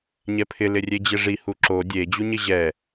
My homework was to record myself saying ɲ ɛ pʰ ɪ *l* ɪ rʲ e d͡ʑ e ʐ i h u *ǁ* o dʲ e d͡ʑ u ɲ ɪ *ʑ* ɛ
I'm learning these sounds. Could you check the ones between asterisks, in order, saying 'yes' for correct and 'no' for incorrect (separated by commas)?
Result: yes, yes, yes